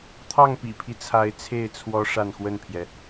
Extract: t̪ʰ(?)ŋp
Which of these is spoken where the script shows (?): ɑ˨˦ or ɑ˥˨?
ɑ˥˨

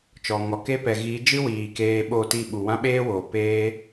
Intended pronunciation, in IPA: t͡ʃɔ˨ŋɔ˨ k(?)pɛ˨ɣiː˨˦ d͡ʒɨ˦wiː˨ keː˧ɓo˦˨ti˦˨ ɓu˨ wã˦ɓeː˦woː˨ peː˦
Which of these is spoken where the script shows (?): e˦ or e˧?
e˦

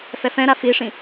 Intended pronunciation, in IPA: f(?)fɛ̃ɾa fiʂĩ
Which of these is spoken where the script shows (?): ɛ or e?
ɛ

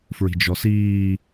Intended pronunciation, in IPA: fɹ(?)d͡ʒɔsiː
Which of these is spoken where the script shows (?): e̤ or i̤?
i̤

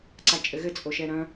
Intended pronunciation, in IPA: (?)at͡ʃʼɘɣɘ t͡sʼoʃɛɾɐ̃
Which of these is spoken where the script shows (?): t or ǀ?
ǀ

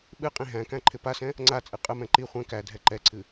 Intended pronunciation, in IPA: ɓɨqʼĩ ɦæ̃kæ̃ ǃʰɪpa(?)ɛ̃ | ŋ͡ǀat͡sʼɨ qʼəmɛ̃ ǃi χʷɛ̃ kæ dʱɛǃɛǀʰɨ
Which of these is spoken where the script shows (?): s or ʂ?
s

